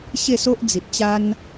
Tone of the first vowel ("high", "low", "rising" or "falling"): falling